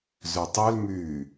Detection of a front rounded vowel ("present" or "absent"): present